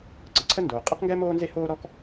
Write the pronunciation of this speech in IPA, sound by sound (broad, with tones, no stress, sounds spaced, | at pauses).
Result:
ǀ ə˩ ǀʰ ə˥ n d oː˩ qʼ ɛ˥ q ŋ ɡ ɛ˥ m oː˥ n z e˥ h oː˥ ɾ ɔ˥ k